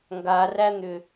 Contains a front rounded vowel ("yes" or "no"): yes